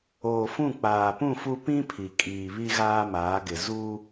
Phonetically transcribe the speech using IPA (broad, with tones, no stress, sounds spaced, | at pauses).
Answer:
oː˨ f ũ˦˨ k͡p aː˨ p ũ˦˨ f u˦ p ĩ˦ pʰ i˨ kʼ iː˨ β i˦ ɣ aː˦ m aː˨˦ ɡ ɪ˨ z u˦